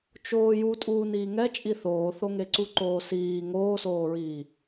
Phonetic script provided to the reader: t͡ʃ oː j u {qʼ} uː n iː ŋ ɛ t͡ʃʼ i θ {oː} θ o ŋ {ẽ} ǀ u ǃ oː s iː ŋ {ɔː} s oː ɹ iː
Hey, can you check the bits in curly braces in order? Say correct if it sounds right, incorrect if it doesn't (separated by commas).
incorrect, correct, incorrect, incorrect